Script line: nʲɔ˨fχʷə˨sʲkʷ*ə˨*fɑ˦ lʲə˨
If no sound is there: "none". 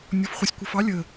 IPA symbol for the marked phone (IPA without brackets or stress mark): ʌ˨